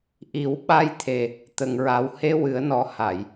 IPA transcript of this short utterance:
ʔ i˨˩˦ w ɓ a˧ j t̪ʰ e˧ | t̪ ə˧ ŋ ɹ a˧˥ w h e˧˥ w ɨ˨˩˦ ə̯ n ɔ˨˩ h a˨˩˨ j

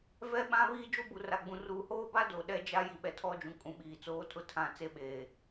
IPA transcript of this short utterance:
v ɛ˦ ɓ ã˦ β iː˦ d͡ʒ o˦ b u˨ r a˨ ɡ͡b ũ˨ r uː˨ h oː˦ b a˦ d o˨ ɗ ɛ˦ d͡ʒ a˦ j i˨ ɓ ɛ˨ tʰ ɔ˦ d͡ʒ ũ˨ kʼ ũ˨ ɓ iː˨ t͡s oː˦ tʰ ʊ˦ tʰ ã˦˨ t͡s e˦ ɓ eː˨

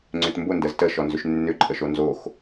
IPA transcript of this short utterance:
ŋ͡ǀ ʏ t m b ʊ n d ə z t ə ʃ ɔ n z ʏ ʃ nː ʏ ǃʼ ə ʃ o n z o x

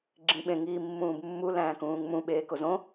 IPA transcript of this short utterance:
ɡ͡ǁ ĩ ɓ ẽ ŋ iː mː ũː b mː u l æ̃ː k ũː ŋ m ũ ɓ eː k o z õ

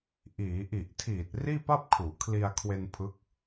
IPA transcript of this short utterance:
ʔ iː˩˦ ʔ i˨˩ ʔ tʰ iː˨˩ t̚ r iː˥˩ p a˥˩ p̚ kʰ uː˩˦ kʰ l i˧ a̯ kʰ w e˧ n pʰ ɯ˦˥ k̚

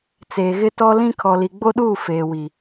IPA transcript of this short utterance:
t͡s eː˨ ɣ ɪ˦ t ɔ˦ l ĩ˦ kʰ ɔ˨ l i˨ ɡ͡b o˦ ɗ uː˦˨ f eː˨ w i˨

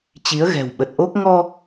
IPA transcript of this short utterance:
t͡ɕ i˨˦ ə̯ ɣ ɛ̤˨˩ w ɓ ə˨˩ t̚ ʔ o˦˥ k̚ ŋ ɔ˧

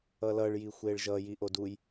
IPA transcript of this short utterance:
ʌ l ʌ ɭ j i xʷ e ɭ ʒ ʌ j i ʔ o d u j

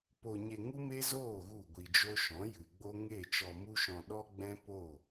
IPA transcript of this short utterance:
p o˧ ɲ e˧ ŋ u˦ m e˦ z oː˦˨ ɣ u˦˨ ɡʷ i˧ d͡ʒ o˦ ʃ ɔ̃˨˦ j ɨ˨ ɡ͡b o˦ ŋ e˦˨ t͡ʃ ɔ˧ m u˦ ʃ ɔ̃˧ ɗ ɔ˦ ɡ͡b ɛ̃˦ p o˦˨

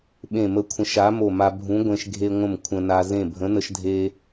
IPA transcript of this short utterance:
ɓ ẽ˧˩ m ə˧˩ kʷʰ ə̃˨˥ ʃ a˨˥ m o˧˩ m a˧ bʱ ũ˨˥ ɡʷ ẽ˧ ʃ ɡʱ e˧ ŋʷ ə̃˧˩ m kʷʰ ə̃˧ n a˧ z ẽ˧˩ bʱ ə̃˨˥ n ə˧ ʃ dʱ e˧

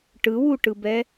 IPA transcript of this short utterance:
ʈ ɯ w u ʈ ɯ b ɛ

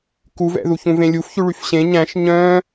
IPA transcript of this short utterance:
k u v ɛ̰ ð u ç ũ v ẽ lʲ u f ç ʉ ɭ y f ɕ ẽ ɲ æ̃ ʃ ɲ œ̃

